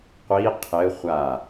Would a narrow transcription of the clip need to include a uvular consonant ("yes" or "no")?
yes